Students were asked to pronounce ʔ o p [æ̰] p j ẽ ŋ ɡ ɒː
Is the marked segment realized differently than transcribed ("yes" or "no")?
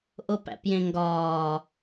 no